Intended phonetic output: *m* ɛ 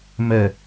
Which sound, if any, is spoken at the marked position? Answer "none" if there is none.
m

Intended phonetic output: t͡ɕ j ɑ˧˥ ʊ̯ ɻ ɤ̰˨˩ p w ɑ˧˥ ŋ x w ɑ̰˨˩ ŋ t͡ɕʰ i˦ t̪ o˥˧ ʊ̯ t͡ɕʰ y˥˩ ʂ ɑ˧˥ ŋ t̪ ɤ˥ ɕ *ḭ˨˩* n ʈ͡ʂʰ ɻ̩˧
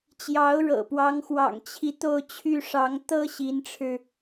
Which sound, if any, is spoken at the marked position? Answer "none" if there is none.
i˧˥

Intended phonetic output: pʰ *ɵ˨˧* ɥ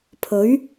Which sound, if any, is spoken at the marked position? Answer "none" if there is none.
ɵ˨˥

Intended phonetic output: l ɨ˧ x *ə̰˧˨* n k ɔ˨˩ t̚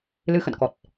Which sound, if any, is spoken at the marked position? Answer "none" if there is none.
ə̰˧˨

